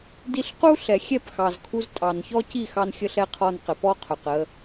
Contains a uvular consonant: yes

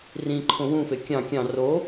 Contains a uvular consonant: no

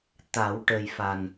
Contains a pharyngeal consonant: no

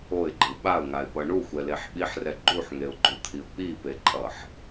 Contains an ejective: yes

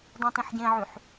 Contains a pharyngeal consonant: yes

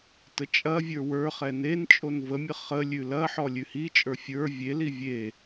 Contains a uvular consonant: yes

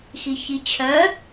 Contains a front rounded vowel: yes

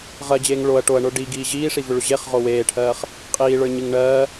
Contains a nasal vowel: no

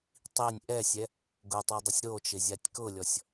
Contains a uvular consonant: no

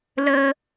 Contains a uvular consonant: no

